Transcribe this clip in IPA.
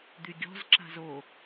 d̪ y ɡʲ ɔ̤ z ǁ a̤ z o

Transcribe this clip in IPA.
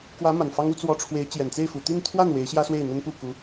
k w ä˧˥ m a˨˩ n f ɑ˥ ŋ u˥ t͡s w ɔ˧˥ ʈ͡ʂʰ w e˧˥ ɪ̯ t͡ɕ j ɛ˨˩ n t͡s e˥˩ ɪ̯ f u˨˩ t̪ i˥˧ n t̪ʰ w a˥˩ n w e˧˥ ɪ̯ ɕ j ä˥ s w e˥˩ ɪ̯ n̪ ə˥ n p u˥˩ k u˧˥

